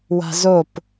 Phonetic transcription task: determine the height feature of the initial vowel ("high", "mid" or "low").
low